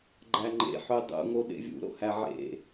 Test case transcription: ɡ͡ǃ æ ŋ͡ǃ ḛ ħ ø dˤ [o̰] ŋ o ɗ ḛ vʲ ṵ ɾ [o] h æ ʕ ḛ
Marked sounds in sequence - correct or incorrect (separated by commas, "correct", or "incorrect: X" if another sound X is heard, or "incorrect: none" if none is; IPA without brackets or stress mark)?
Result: incorrect: ṵ, incorrect: o̰